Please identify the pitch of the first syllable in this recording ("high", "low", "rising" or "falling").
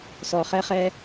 low